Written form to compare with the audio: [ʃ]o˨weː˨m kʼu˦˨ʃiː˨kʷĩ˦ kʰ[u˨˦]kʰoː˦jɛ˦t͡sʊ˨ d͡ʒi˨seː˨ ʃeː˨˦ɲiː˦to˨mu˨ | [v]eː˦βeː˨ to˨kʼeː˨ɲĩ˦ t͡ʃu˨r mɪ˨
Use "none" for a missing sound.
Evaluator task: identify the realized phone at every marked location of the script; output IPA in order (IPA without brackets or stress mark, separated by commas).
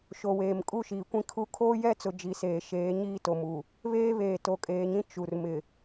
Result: ʃ, u˨˦, β